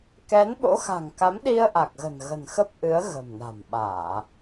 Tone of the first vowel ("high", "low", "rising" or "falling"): rising